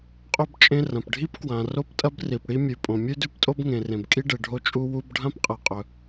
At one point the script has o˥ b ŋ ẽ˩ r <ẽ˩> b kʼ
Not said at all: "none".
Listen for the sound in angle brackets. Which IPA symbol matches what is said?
ẽ˩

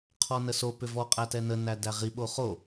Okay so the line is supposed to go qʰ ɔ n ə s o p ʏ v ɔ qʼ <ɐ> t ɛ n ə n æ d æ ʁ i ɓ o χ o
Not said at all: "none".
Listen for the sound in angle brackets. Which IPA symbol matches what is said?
æ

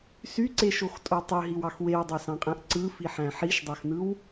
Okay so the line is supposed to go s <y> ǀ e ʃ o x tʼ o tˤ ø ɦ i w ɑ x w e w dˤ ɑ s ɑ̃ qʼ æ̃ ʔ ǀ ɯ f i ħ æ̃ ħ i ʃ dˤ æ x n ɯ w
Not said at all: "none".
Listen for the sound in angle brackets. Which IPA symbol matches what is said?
y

